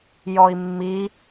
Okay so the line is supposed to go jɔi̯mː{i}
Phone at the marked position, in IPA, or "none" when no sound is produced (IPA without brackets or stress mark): i